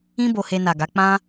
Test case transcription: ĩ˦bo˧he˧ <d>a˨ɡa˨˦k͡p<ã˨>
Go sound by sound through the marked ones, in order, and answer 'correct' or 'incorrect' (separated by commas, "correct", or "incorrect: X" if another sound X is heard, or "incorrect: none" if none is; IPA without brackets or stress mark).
incorrect: n, incorrect: ã˦